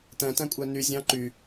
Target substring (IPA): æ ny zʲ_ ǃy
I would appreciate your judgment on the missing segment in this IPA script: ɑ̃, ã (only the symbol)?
ɑ̃